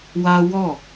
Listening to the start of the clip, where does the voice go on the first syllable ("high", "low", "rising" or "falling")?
high